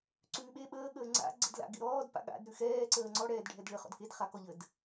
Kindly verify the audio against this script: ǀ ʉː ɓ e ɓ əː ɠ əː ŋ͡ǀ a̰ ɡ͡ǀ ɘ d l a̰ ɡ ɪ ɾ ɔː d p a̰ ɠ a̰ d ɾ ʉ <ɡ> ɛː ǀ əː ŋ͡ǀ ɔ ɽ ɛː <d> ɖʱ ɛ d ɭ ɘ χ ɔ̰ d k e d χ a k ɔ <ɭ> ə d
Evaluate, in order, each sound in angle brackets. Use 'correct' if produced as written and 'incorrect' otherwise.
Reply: incorrect, correct, incorrect

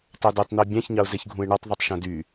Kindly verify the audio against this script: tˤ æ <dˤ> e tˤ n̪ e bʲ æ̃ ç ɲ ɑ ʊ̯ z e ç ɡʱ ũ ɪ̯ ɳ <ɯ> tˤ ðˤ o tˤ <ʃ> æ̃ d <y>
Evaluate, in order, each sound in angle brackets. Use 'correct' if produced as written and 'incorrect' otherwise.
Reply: incorrect, correct, correct, correct

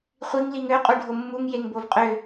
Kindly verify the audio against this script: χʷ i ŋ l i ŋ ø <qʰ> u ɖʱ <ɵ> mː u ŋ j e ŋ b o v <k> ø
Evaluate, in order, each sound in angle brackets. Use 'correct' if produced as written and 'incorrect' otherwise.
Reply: incorrect, incorrect, incorrect

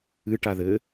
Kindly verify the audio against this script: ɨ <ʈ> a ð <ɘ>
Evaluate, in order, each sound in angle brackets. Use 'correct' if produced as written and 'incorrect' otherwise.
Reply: correct, correct

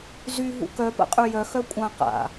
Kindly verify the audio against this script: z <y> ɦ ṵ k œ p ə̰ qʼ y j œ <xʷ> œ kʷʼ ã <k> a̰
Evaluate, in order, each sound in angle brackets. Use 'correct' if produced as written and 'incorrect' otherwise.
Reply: correct, incorrect, incorrect

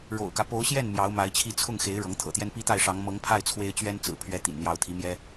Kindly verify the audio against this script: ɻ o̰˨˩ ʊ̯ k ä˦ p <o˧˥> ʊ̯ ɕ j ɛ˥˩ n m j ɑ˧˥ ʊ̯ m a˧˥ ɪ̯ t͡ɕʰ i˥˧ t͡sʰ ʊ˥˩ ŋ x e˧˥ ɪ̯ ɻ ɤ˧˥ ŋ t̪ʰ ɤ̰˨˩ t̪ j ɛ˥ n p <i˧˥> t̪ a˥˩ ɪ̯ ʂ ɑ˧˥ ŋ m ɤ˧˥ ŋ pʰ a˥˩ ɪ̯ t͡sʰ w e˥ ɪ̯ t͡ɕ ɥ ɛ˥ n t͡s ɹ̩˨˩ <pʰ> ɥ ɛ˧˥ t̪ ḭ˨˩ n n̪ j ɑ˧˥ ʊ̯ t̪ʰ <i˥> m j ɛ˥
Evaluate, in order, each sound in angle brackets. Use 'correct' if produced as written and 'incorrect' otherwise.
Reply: correct, incorrect, correct, incorrect

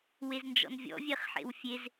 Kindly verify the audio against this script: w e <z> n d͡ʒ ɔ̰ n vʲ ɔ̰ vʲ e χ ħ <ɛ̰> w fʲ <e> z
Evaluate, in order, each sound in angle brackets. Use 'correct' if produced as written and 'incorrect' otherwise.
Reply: correct, incorrect, correct

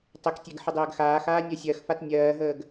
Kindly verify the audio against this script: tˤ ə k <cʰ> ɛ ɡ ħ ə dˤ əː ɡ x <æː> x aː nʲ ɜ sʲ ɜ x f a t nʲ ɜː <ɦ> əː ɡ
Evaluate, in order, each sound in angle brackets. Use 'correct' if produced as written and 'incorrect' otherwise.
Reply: incorrect, incorrect, correct

